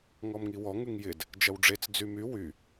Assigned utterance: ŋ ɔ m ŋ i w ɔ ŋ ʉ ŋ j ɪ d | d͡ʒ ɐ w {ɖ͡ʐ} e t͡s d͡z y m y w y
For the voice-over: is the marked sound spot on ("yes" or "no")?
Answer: yes